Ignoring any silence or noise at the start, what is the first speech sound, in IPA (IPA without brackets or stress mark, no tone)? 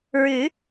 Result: ɹ